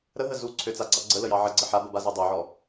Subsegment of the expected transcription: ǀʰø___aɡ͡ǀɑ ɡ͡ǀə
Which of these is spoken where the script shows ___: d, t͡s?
t͡s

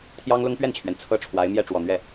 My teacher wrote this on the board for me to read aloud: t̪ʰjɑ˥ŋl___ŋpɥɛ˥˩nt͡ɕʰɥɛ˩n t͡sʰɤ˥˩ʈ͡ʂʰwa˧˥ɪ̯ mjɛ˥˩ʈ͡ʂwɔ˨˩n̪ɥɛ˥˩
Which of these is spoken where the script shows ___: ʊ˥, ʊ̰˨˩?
ʊ˥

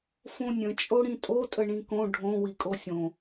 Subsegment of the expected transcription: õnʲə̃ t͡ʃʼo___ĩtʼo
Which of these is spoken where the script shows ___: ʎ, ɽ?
ɽ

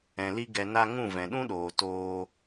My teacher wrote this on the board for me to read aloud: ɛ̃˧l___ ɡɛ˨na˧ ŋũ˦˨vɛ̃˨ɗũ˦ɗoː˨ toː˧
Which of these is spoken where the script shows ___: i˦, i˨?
i˦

